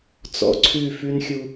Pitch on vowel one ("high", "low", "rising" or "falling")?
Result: low